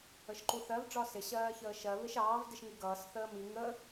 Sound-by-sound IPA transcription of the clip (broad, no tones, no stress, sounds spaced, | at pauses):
ə ʃ ǃ u θ ɜ v ɖ͡ʐ ɒ s ɪ ɕ ɜː ç əː ʃ ɜ β ɪ ʃ ɑː v d ɪ ʃ ŋ i ɡ ʌː s θ əː m i ŋ ə